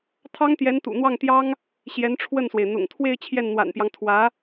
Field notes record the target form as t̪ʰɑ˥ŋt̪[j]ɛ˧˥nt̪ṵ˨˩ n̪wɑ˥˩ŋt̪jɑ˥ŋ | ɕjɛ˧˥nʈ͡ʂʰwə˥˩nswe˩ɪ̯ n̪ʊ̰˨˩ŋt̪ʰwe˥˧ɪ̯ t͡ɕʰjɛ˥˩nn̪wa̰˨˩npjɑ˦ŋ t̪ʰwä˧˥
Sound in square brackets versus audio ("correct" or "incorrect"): correct